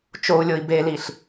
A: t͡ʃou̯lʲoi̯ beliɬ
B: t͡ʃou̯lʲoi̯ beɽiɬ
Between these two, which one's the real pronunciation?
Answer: A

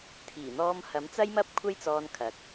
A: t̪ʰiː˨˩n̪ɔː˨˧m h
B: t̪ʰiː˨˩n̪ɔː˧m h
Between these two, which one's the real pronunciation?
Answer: B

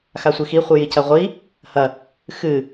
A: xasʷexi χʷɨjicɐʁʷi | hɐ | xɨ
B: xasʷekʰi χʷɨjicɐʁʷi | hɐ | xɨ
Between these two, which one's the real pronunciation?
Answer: A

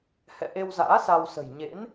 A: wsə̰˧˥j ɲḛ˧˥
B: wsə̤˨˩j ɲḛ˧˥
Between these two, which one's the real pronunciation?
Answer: B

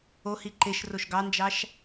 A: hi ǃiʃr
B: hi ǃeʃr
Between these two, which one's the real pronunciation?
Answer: B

